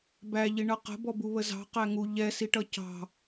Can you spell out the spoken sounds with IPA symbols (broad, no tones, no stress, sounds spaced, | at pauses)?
b æ ʎ i ɳ ʌ q ə̤ b ɔ b u β ə z ɑ̤ q æ ŋ u ʎ ɛ s i ʈ ʌ c ɑ̤